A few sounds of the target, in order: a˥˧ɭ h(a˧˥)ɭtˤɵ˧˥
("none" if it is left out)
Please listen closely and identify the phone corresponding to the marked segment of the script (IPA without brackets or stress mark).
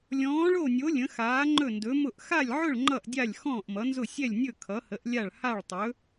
a˥˧